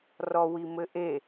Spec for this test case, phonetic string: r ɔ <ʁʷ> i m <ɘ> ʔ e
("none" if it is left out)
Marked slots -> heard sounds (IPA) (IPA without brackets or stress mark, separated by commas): w, ɘ